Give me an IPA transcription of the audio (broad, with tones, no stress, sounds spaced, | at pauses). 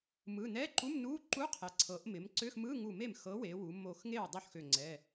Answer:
m ɯ˩˧˩ n ɛ˧˥˧ ǃ u˧˥˧ m n u˧˥˧ ǃ u˧˥˧ qʰ ɛ˩˧ ǀʰ ɤ˩˧ ʔ m ɪ˩˧ m ǀ ø˧˥˧ x m ɯ˧˥˧ ŋ u˧˩ m e˥˩ m x ɤ˨˥ w e˩˧ w u˩˧ m o˧˩ x ŋ e˥˩ u̯ dˤ ɯ˥˩ ħ x ø˧˩ ŋ͡ǀ ɛ˩˧˩